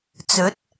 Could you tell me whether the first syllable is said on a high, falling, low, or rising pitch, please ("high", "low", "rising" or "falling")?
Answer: rising